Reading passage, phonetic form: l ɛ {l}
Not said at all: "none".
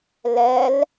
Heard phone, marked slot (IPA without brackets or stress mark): l